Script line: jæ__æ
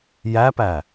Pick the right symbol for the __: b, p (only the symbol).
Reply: p